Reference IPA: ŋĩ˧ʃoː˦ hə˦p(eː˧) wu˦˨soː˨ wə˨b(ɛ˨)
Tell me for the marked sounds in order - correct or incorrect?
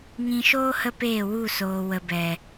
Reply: incorrect: eː˦˨, correct

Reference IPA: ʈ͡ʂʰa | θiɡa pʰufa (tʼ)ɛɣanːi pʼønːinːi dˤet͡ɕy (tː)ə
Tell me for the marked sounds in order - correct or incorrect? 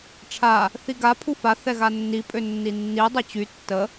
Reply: incorrect: θ, correct

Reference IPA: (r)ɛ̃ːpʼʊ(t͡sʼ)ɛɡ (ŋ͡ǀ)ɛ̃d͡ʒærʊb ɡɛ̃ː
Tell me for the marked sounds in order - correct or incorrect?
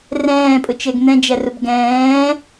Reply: correct, incorrect: t͡ʃ, incorrect: n̪

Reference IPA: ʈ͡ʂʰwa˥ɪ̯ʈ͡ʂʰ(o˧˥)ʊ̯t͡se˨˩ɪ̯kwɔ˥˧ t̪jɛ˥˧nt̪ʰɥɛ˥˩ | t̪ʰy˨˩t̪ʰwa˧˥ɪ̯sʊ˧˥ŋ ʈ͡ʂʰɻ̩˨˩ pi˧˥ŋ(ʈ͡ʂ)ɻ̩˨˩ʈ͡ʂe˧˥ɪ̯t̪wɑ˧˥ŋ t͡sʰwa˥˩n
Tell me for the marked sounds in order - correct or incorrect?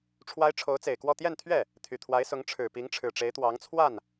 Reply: correct, incorrect: ʈ͡ʂʰ

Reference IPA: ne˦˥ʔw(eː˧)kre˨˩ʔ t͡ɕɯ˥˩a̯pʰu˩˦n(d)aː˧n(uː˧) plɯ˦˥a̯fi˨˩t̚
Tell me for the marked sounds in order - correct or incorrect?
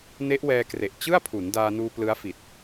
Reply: incorrect: ɛː˧, correct, correct

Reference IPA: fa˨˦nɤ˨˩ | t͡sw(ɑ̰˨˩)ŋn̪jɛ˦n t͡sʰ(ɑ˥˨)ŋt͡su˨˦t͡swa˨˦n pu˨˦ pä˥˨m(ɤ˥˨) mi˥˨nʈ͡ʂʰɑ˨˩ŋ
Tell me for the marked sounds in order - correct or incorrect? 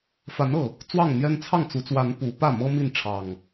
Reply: incorrect: ɑ˥˨, correct, incorrect: ɤ˦

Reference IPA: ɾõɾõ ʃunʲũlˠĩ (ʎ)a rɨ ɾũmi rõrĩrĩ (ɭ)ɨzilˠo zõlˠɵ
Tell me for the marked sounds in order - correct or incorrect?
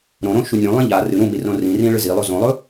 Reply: correct, correct

